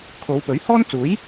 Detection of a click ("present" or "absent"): absent